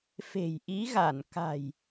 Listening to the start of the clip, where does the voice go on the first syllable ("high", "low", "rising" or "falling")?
low